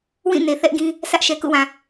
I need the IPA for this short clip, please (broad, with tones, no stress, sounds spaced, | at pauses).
w ĩ˦˨ n e˨ θ ɛ˦ ʔ ɡ ĩ˦ | s ä˦ ʔ ʃ ɛ˨ k ṵ˦˨ w ã˨